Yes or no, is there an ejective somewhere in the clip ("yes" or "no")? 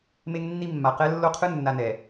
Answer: no